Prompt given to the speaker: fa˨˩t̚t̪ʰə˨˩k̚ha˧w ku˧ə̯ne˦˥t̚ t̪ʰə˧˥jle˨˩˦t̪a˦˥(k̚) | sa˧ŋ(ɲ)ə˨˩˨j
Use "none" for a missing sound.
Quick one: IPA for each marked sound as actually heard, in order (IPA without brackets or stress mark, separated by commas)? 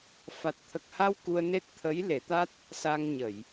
t̚, ɲ